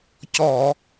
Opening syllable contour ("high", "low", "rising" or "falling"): low